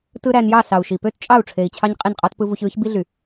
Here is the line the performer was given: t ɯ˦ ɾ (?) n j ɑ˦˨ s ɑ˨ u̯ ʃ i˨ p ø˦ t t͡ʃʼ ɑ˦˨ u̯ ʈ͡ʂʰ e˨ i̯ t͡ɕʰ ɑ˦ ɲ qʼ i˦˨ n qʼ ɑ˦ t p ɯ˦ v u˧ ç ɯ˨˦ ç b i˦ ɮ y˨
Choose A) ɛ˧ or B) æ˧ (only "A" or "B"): B